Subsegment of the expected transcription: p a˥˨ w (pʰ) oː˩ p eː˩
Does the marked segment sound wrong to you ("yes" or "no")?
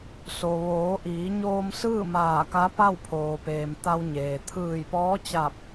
no